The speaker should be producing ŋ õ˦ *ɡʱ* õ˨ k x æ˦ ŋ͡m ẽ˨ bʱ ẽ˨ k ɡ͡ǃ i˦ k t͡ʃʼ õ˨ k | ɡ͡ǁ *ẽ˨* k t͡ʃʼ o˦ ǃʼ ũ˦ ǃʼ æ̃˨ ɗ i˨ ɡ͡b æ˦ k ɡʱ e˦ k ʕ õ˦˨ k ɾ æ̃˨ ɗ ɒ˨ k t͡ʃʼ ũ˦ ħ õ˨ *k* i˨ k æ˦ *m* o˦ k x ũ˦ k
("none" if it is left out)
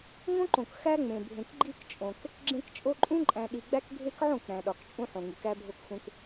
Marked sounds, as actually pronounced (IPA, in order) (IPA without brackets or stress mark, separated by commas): ǃ, ẽ˦, ŋ, bʱ